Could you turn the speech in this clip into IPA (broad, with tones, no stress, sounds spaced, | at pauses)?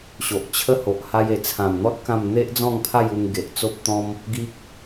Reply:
ɕ o˨ ʔ t͡ɕʰ ə˦ h o˨ ʔ h a˧ j e˨˩ t͡sʰ ã˨˩ m n̪ ɔ˦ t̚ k ã˥˧ m n̪ e˦ ʔ d͡z ɔ̃˥˧ ŋ pʰ a˥˧ j u˧ ŋ ɡ e˨ ʔ t͡s o˦ p̚ t̪ ɔ̃˦ m | ɡ i˦ k̚